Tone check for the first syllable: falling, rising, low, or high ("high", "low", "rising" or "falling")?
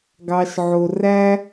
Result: low